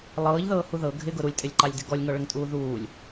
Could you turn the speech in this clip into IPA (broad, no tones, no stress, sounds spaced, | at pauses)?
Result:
lˠ ɤː ʎ ð ɤː h u ð ɤ ɡʱ ɪ ɡ ʊ ɾ u lʲ tʼ ɪ lʲ ǃ ɑ lʲ d ɪ ɡ ɔ lʲ ŋ ɔ ɭ ə ŋ tʼ uː ð uː lʲ